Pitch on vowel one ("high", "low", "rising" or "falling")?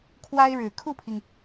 high